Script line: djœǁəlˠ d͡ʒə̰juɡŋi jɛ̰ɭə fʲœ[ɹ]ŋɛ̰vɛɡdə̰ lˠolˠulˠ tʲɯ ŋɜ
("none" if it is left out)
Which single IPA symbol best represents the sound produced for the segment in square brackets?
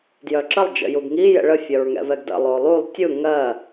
ɹ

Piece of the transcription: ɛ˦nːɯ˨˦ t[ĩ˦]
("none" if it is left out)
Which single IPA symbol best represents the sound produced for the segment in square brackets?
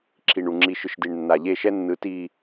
i˦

